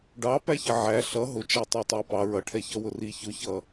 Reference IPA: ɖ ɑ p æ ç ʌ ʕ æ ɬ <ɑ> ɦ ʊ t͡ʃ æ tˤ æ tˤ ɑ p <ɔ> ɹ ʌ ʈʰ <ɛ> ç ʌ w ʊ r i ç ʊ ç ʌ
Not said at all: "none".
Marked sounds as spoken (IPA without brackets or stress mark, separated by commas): ʌ, ɑ, ɛ